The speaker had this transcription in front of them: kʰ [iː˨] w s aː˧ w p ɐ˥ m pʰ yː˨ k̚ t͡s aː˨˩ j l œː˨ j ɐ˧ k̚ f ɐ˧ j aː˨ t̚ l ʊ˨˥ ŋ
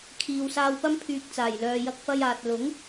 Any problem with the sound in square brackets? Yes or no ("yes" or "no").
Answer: no